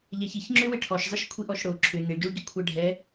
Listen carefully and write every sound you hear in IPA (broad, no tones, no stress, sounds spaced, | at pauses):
ʎ ɛ ç i ç ŋ͡ǁ ʏ w ɪ ʈʰ ɔ ʃ zˤ ɪ ʃ kʷʰ i ʔ ɔ ʃ ɽ o ǁʰ ʏ n e ɭ ɟ o ɭ ɟ ʏ kʷʰ ɛ ɖʱ ɛ